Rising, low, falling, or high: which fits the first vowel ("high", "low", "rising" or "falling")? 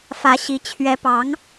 rising